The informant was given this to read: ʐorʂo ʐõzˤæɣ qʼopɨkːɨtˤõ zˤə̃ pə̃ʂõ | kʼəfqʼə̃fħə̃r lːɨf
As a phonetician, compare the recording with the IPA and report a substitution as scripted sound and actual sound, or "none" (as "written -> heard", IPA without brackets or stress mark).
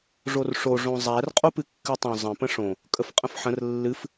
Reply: ɣ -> r